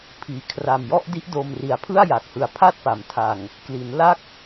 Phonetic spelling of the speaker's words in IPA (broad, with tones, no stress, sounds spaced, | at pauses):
pʰ iː˩˦ kʰ r a˨˩ m j ɔ˥˩ ʔ d i˦˥ ʔ d o˧ m r i˨˩ a̯ pʰ ɯ˥˩ a̯ j a˨˩ k̚ h ɯ˨˩ a̯ pʰ a˥˩ t̚ p a˩˦ m tʰ a˨˩ ŋ | k l i˩˦ n l a˦˥ k̚